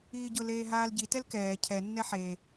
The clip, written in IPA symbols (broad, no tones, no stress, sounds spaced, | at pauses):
iː ɟ ʊ l eː ɦ aː l ɟ i t ɛ l k ɛː cʰ ɛ nː ɛ ħ e